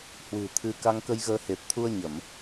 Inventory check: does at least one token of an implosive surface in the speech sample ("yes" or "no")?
no